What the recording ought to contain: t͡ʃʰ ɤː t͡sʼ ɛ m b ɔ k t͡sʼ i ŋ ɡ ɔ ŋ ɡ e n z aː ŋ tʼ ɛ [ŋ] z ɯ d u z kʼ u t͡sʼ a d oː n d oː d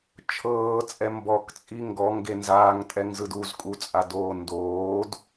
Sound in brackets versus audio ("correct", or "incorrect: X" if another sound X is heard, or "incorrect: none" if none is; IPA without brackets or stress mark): correct